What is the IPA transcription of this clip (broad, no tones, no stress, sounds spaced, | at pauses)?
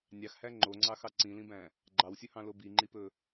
nʲ ɑ x h æ ŋ͡ǃ o ŋ͡ǀ ɑ x ɑ ǀ ĩ l ĩ b æ̃ | ɡ͡ǃ ɑ w sʲ ɵ h ɑ̃ l o b i ŋ͡ǃ i p ɵ